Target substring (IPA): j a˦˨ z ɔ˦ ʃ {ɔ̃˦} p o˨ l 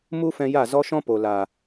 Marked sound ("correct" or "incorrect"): correct